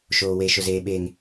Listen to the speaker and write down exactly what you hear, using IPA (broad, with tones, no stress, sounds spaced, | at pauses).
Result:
ʃ oː˨ w e˨ ʃ ʊ˨ z eː˨ ɓ eː˨ ŋ